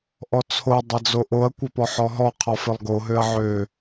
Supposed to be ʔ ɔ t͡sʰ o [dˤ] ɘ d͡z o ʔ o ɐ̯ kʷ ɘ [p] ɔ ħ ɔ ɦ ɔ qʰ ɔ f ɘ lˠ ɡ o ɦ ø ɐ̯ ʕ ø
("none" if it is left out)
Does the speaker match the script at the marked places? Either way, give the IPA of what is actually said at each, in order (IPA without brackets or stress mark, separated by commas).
dˤ, p